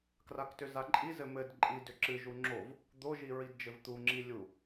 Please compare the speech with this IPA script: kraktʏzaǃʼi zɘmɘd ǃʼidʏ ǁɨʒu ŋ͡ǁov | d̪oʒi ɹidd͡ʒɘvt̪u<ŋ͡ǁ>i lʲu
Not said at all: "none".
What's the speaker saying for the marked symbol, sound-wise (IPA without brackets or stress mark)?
ŋ͡ǁ